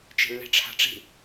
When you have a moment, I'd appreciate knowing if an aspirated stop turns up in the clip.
yes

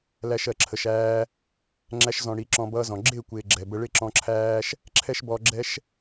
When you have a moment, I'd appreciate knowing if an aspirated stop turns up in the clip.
yes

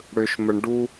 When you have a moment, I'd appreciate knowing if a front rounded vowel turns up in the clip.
yes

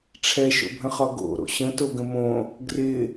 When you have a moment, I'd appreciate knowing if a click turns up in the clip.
no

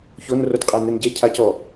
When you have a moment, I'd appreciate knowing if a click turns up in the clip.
no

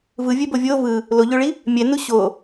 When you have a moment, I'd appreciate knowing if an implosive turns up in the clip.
no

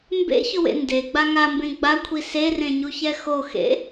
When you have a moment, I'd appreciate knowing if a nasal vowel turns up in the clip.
yes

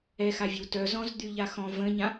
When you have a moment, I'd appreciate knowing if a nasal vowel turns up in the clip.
yes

